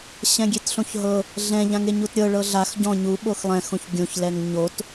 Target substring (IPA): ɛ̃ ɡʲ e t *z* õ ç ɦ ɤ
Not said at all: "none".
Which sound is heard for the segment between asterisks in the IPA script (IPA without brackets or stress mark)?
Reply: ɬ